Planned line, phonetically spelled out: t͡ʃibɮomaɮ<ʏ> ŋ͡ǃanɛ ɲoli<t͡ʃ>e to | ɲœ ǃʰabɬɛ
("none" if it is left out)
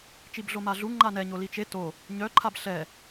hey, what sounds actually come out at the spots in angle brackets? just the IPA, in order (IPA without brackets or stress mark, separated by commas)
u, t͡ʃ